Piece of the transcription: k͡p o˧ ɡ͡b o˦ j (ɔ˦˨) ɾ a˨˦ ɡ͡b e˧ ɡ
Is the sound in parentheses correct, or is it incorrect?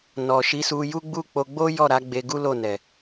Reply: correct